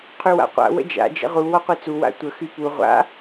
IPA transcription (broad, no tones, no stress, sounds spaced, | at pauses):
qʰ y w a̰ qʷ a̰ w ə̰ d͡ʒ a̰ d͡ʒ ə̰ ʁ u w ɔ qʷ e t͡s u w a̰ tʷ ə x y p u ʁʷ a̰